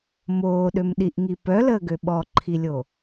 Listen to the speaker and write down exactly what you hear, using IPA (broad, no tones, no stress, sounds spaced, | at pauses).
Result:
m oː ɗ ø m ɗ i ʔ ŋ i p œ l əː ɡ ø ɓ ɔ ǃʰ i lʲ o